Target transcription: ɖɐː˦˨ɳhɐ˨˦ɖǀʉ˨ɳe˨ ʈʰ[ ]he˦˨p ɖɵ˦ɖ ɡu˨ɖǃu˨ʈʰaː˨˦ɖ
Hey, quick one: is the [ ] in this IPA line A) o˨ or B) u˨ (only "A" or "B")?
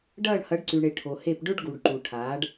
A